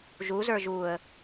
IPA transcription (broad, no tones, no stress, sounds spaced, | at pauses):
ʒ u z ə˞ ʒ u ə̯